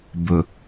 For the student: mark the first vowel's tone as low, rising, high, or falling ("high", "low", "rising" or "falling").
low